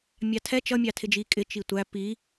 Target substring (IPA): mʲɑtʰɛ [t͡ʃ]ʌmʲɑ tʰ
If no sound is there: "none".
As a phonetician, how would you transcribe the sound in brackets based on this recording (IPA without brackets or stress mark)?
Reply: t͡ʃ